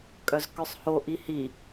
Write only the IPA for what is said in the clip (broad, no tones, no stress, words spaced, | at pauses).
kʼœzkœsˤho ʔihi